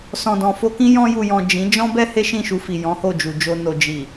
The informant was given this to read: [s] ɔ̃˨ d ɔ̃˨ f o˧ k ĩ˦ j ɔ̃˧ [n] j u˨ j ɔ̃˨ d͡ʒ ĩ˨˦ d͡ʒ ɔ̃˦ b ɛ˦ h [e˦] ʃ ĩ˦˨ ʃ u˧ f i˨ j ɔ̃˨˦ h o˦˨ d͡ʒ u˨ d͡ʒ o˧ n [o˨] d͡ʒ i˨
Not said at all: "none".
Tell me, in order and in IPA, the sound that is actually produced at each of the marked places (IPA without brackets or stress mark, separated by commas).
s, none, e˦, o˨